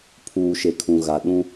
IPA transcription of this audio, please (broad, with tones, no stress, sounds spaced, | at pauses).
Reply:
pʰ uː˨ ʃ e˨ kʰ ũ˨ ɣ a˨ ɗ ũ˦